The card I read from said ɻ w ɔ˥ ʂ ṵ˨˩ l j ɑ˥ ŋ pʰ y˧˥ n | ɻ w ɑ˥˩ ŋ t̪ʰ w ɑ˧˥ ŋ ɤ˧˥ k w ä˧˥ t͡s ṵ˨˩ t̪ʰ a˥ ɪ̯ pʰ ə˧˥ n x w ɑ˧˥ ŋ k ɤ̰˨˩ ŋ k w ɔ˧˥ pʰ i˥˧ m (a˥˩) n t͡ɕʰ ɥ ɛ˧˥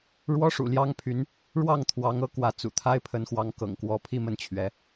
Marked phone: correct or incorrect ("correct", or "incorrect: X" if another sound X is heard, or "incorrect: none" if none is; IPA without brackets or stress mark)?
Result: incorrect: ə˥˩